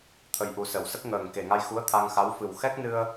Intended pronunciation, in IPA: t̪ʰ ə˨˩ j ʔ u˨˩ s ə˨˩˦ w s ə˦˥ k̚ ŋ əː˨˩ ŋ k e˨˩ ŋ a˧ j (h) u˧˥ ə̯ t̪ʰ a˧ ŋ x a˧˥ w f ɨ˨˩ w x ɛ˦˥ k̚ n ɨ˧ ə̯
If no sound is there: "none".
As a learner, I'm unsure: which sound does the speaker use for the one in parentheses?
x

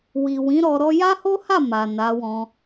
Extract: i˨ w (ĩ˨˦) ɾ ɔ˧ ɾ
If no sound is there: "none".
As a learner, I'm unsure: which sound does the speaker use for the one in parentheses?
ĩ˨˦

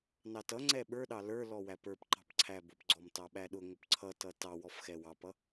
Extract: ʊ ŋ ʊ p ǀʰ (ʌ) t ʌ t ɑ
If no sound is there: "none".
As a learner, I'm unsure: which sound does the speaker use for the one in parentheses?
ʌ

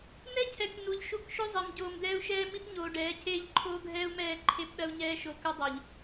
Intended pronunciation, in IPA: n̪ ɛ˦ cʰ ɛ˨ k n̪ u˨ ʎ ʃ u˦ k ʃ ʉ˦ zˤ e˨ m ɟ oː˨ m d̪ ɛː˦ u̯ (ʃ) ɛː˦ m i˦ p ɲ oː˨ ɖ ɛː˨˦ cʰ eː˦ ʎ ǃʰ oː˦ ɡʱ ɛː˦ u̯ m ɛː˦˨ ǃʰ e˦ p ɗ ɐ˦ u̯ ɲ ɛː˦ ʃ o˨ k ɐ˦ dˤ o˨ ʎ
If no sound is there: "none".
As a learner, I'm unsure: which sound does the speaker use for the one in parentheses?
ʃ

